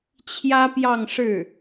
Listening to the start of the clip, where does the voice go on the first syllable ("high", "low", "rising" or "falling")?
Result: high